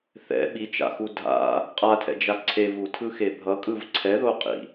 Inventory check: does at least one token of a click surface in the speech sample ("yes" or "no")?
yes